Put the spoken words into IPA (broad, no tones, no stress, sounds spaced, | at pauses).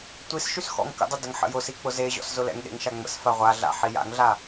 tʷ i s ʃ y s x ɔ̰ ŋ k ə̰ dˤ ə d ə ŋ ħ ə̰ j ʊ s i k͡p ʊ z e ʑ ɔ̰ s z ʊ l ɛ̰ ŋ ɗ ḛ ŋ ʃ a ŋ͡m ə̰ s f a ʁʷ a ɮ a̰ ħ i j a̰ ŋ ɮ a